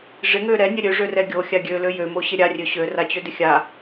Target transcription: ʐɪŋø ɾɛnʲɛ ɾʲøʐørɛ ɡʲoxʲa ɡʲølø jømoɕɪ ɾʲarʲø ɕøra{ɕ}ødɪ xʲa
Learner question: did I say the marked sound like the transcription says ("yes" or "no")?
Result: no